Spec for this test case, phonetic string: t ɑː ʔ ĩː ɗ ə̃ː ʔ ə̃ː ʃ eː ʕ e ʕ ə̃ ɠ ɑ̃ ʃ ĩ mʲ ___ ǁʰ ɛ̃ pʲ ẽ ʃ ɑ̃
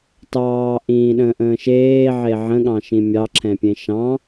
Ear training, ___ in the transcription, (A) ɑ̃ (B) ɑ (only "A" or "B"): B